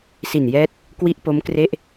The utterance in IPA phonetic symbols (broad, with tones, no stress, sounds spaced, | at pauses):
s i˨˩ n j ɛː˦˥ t̚ | k w i˦˥ ʔ p o˦˥ m k r e˥˩ ʔ